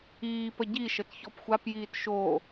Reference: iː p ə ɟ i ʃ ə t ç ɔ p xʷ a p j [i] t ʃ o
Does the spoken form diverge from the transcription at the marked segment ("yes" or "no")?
yes